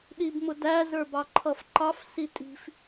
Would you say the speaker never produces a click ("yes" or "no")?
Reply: no